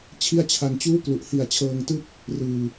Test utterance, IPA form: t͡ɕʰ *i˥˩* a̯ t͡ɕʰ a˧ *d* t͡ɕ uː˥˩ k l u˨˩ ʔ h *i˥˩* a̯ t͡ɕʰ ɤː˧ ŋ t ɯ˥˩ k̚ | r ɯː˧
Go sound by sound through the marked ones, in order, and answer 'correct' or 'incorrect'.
correct, incorrect, incorrect

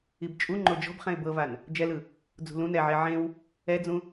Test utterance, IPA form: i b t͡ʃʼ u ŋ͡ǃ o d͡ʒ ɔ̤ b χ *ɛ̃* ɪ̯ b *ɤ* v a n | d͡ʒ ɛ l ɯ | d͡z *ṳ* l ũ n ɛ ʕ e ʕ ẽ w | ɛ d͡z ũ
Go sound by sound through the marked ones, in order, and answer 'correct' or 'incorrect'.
correct, correct, correct

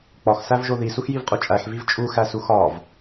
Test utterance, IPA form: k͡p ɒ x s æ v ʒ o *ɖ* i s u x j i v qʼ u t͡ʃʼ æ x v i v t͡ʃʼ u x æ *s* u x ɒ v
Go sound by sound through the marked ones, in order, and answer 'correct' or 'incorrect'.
incorrect, correct

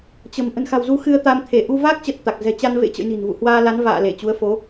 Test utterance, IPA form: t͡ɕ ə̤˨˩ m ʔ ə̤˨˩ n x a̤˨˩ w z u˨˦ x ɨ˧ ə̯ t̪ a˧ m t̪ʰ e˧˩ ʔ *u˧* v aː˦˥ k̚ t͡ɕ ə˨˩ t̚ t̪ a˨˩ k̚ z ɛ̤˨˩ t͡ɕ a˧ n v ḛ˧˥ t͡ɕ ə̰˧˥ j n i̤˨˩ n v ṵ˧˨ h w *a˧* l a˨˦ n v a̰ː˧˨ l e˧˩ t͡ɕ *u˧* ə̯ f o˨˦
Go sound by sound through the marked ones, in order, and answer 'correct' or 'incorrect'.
correct, incorrect, incorrect

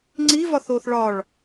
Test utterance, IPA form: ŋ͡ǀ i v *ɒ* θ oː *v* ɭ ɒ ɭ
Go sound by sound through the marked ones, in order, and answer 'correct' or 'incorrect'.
correct, incorrect

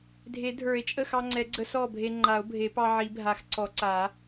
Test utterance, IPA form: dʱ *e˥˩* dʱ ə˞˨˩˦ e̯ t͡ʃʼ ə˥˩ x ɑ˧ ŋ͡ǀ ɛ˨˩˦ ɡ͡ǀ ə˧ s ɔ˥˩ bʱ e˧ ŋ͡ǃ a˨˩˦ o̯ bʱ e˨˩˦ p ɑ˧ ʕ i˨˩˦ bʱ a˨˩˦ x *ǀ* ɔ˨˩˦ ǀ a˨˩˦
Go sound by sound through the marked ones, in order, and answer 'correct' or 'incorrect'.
incorrect, correct

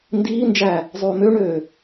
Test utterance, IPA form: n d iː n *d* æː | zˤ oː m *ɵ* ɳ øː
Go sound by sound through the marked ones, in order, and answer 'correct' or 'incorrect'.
incorrect, incorrect

